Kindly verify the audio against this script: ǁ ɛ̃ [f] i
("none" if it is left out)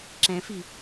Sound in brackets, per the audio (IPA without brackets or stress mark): f